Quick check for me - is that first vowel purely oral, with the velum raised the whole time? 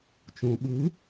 no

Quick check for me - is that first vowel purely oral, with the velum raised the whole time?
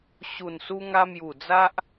yes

